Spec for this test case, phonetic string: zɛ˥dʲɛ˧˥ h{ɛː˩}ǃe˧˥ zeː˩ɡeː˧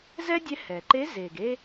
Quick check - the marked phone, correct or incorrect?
correct